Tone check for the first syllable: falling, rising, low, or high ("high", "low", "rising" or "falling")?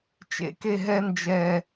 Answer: low